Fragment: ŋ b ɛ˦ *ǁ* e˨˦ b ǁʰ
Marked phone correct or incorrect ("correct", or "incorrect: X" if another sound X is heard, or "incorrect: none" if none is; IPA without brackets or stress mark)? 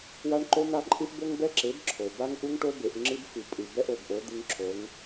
correct